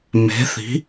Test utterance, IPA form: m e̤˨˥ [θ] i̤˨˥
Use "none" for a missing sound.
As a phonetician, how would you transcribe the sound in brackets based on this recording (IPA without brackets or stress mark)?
θ